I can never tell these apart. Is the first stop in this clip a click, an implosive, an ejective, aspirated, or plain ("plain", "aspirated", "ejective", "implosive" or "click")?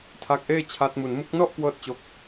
aspirated